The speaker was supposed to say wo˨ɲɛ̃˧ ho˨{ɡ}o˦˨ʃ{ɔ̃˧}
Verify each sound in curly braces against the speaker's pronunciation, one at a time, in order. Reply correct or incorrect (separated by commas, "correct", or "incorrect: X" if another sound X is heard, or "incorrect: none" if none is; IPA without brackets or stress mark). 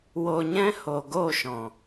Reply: correct, incorrect: ɔ̃˨